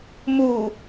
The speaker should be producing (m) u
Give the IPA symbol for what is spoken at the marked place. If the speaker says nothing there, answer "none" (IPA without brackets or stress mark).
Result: m